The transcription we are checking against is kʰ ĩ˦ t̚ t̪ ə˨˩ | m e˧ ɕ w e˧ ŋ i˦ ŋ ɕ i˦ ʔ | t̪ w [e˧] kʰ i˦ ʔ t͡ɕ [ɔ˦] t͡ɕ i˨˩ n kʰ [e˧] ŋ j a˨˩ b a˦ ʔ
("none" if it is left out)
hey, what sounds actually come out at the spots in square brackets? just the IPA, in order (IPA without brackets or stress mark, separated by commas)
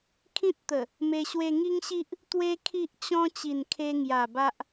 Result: e˦, ɔ̃˦, e˧